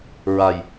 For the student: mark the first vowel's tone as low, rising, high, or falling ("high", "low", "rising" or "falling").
low